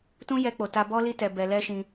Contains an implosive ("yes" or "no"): no